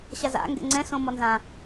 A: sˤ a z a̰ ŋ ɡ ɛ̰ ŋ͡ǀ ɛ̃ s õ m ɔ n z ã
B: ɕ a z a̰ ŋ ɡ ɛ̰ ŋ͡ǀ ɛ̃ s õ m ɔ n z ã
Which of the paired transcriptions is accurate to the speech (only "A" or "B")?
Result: B